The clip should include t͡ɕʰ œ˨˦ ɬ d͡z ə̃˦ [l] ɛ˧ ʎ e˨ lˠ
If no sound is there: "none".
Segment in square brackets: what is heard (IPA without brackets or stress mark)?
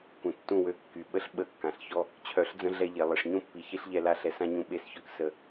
ɮ